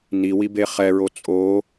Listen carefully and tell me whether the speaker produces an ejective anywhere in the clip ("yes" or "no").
yes